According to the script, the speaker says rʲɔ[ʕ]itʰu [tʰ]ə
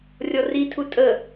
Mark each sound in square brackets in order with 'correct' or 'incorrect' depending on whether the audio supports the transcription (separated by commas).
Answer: incorrect, incorrect